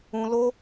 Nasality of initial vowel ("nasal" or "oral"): nasal